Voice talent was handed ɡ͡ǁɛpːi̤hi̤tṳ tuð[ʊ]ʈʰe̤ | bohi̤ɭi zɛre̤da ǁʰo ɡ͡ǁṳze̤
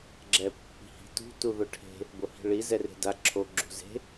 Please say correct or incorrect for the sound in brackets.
correct